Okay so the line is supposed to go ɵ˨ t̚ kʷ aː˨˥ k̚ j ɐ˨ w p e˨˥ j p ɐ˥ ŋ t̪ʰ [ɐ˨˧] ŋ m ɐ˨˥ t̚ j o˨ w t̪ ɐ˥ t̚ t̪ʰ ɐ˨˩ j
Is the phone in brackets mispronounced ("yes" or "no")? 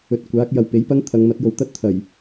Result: no